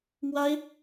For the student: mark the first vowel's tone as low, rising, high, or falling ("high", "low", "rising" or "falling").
high